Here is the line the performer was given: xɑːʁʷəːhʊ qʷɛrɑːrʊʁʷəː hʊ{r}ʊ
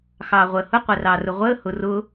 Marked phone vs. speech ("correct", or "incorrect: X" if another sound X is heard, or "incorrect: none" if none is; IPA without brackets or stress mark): correct